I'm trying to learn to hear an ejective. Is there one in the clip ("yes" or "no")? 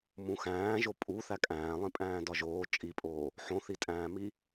yes